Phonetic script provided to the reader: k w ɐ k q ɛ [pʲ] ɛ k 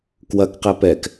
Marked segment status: incorrect: p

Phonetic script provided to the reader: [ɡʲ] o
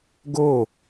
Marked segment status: incorrect: ɡ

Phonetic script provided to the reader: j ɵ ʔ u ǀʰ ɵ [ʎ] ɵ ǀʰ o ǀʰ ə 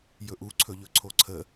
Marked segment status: correct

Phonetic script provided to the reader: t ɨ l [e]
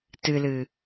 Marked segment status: incorrect: ɨ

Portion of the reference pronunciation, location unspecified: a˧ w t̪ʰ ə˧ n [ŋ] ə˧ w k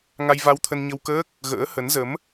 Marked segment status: incorrect: ɲ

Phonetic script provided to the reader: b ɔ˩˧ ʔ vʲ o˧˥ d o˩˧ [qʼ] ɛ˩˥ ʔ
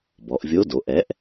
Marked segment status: incorrect: ʔ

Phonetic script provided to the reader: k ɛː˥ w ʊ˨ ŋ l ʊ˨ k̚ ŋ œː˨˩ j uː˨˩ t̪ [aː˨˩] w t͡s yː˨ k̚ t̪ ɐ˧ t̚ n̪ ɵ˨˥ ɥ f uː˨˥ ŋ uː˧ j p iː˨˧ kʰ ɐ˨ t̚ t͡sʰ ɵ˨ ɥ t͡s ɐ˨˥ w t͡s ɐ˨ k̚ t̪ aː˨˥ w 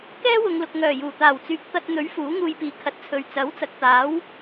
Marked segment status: correct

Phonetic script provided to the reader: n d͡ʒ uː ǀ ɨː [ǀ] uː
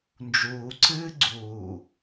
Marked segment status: incorrect: ɡ͡ǀ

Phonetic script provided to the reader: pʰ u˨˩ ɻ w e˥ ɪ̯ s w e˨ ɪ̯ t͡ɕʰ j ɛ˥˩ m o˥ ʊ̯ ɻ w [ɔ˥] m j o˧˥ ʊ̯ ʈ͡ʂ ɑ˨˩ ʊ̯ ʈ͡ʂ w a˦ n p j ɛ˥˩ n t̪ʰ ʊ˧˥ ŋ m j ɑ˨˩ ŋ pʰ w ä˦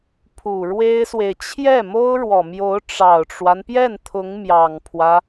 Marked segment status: incorrect: ɔ˨˩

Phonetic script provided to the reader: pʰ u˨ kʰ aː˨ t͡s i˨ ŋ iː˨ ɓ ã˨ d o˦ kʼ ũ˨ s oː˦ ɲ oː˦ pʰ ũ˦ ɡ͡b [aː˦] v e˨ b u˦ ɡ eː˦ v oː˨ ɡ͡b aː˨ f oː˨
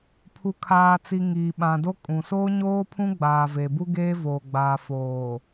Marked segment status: incorrect: aː˨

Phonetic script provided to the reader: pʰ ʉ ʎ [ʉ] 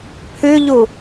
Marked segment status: incorrect: u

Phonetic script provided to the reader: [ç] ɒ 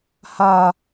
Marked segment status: incorrect: h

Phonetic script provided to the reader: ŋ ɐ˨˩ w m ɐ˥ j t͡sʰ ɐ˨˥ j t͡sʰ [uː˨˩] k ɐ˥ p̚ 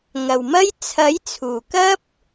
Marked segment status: correct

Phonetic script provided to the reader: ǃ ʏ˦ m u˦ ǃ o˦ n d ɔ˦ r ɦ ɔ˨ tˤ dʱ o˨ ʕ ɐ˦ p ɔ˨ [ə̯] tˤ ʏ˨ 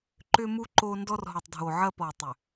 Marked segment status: correct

